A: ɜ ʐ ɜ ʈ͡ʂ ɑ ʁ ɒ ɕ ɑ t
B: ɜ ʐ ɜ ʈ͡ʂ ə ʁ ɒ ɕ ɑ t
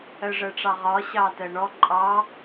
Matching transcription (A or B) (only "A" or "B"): A